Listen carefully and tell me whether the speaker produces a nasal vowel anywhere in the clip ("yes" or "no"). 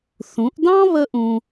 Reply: yes